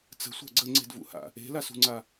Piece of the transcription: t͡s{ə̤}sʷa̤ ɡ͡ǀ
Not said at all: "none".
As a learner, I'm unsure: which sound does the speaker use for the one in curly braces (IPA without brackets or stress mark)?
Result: ə̤